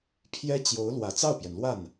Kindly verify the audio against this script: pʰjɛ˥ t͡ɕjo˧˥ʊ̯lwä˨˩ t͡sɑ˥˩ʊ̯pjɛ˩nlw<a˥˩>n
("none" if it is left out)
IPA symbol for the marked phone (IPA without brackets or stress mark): a˥˩